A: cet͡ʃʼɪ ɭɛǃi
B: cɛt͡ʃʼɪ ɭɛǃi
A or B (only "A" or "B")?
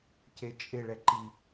A